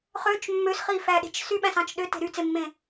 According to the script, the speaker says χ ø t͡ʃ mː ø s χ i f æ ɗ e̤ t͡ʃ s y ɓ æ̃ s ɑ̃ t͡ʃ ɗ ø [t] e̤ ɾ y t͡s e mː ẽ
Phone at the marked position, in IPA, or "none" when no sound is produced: t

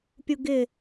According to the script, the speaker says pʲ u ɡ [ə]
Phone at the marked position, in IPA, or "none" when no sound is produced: ɪ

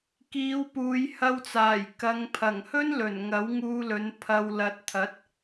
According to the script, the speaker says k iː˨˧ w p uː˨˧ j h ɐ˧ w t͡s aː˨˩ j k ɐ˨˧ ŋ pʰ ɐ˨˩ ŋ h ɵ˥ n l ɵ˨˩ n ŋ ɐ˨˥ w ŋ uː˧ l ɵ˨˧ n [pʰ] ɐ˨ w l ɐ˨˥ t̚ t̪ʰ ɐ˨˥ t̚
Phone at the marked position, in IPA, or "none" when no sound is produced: pʰ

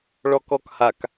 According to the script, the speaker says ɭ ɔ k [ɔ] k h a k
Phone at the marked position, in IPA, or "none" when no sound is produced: ɔ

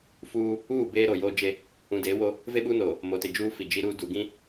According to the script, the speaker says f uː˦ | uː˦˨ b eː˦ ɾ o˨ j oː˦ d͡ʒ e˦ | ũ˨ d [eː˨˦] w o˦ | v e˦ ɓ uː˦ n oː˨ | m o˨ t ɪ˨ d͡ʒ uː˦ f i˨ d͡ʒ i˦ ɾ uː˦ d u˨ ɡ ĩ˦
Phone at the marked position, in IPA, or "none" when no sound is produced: eː˨˦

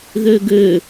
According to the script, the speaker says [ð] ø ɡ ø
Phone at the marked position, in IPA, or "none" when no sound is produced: ð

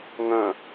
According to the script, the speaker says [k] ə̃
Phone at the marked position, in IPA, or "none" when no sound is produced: ŋ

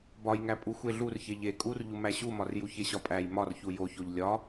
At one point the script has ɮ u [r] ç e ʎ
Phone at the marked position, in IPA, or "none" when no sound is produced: r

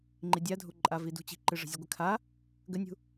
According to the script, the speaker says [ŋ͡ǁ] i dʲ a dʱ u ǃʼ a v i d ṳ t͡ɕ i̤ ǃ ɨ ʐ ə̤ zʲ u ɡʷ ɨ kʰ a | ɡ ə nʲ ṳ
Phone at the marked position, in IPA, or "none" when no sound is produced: ŋ͡ǃ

